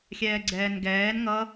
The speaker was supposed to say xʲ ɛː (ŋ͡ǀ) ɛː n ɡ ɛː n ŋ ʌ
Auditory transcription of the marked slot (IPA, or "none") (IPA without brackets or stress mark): ɡ͡ǀ